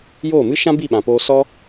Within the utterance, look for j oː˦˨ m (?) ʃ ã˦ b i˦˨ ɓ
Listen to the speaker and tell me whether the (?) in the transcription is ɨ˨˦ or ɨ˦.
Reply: ɨ˦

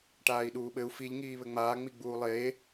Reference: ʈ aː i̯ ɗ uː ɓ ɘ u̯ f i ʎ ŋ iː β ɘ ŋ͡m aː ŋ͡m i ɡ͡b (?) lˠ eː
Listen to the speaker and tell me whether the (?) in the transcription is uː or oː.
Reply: uː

